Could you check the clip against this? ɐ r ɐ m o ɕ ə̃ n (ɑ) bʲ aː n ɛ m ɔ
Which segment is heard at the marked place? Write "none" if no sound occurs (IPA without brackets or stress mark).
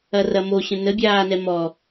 ə